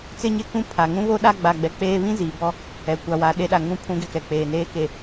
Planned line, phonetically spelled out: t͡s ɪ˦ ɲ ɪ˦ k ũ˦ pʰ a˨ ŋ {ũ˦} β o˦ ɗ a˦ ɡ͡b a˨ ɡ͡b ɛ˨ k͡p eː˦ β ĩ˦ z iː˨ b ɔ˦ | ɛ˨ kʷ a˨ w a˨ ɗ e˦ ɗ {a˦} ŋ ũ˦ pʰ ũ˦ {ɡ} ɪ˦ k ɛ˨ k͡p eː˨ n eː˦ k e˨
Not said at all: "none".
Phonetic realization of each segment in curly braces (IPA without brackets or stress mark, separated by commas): ũ˦, a˨, ɡ